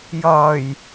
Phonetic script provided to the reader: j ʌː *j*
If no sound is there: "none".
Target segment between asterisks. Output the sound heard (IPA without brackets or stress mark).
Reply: j